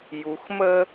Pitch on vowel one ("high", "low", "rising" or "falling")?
low